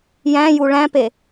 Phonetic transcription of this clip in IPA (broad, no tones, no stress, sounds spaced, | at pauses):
j æ̃ j u ɭ æ̃ p e